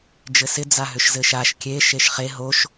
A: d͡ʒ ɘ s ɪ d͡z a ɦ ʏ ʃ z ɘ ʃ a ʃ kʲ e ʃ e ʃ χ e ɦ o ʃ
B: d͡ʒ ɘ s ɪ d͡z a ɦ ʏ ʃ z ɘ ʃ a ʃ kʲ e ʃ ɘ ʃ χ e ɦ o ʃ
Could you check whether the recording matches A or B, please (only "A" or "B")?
A